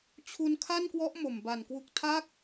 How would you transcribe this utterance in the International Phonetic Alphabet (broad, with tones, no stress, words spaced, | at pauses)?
t͡ɕʰu˧nkʰa˥˩nkwɔ˦˥ʔ mo˨˩mba˨˩nkwu˦˥k̚ tʰa˦˥k̚